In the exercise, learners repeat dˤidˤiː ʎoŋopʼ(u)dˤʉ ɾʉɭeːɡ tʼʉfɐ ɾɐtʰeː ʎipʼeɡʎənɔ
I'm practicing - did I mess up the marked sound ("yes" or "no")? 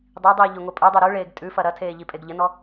yes